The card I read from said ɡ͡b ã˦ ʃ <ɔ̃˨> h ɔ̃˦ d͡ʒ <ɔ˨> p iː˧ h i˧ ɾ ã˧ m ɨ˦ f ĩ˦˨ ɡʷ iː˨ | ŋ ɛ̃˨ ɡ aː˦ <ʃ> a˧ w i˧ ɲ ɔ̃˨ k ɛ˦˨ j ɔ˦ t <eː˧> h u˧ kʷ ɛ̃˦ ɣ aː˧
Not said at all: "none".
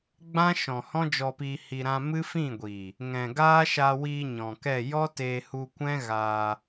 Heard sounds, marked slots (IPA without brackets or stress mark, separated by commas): ɔ̃˨, ɔ˧, ʃ, eː˧